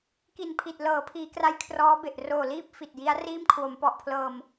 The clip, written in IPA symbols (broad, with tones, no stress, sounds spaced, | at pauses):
k i˨˩ n pʰ i˨˩ t̚ l ɤː˩˦ pʰ iː˩˦ k r a˦˥ j kʰ r ɔː˦˥ b e˨˩ ʔ r oː˨˩ l iː˥˩ p̚ f i˨˩ t̚ j i˦˥ a̯ r iː˥˩ m kʰ w o˩˦ m p ɔ˨˩ ʔ pʰ l ɤː˧ m